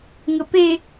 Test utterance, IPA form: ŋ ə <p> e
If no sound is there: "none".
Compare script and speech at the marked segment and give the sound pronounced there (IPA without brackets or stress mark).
p